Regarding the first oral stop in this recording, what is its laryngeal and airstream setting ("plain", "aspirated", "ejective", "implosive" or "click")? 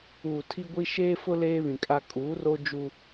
aspirated